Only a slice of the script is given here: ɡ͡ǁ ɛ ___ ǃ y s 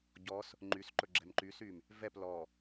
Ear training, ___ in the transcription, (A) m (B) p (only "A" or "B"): A